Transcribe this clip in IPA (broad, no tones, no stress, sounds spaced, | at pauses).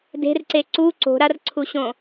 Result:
d e̤ r ǀ e ǀ u ǀ o̤ ɾ a r ǀʰ u ɕ õ